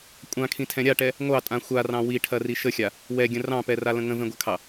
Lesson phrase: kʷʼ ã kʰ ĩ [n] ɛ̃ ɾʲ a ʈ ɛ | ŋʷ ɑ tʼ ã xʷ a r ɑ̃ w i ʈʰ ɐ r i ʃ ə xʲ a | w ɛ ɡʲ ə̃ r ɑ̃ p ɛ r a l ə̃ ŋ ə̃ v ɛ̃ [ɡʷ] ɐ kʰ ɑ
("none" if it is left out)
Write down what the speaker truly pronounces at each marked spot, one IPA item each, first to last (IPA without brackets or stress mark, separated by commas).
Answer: tʰ, ɡʷ